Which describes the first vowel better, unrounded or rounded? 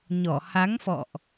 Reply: rounded